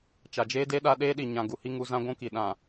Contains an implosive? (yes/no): yes